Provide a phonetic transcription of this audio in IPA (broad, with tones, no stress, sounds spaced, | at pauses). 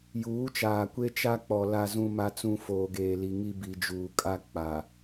j uː˨˦ t͡ʃ aː˨ kʷ e˦ t͡ʃ a˦ k͡p ɔ˨ l a˨ z ũ˨ m a˨ t͡s ũ˨ f oː˨ ɡ eː˨ l i˨ ŋ i˦ b i˨ d͡ʒ uː˨ kʼ a˦ k͡p a˨